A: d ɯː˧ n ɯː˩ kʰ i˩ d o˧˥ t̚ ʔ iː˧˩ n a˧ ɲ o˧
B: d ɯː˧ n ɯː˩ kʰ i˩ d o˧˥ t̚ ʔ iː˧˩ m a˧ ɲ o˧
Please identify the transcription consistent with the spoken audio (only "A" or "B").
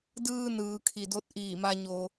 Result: B